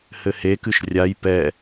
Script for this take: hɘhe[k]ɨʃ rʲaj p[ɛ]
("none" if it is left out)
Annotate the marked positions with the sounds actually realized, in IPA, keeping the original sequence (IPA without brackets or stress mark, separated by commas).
k, ɛ